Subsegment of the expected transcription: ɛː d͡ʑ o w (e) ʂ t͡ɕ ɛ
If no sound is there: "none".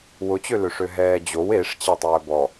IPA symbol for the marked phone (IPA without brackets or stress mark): e